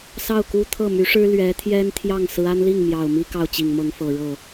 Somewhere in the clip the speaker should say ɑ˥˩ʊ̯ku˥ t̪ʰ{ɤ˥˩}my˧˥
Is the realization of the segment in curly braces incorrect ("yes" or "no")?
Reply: no